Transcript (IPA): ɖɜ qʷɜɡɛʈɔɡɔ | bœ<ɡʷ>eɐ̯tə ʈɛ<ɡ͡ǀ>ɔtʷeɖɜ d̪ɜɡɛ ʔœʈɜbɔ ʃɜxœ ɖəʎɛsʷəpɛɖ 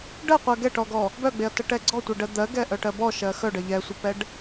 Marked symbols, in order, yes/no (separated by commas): no, yes